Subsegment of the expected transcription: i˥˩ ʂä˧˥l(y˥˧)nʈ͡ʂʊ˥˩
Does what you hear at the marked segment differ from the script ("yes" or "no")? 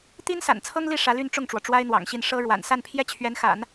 no